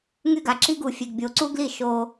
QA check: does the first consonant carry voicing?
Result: yes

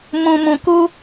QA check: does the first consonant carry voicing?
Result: yes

